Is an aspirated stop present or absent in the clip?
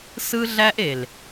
absent